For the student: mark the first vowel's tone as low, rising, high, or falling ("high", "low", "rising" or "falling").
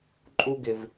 high